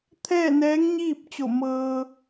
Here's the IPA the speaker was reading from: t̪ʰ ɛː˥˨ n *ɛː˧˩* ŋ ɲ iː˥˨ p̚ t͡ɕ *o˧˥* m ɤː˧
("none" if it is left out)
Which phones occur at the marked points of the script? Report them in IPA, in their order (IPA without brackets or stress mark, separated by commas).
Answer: ɛː˧˥, o˧˩